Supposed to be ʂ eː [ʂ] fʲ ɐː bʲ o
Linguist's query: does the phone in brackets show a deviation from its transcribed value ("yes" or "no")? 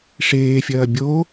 yes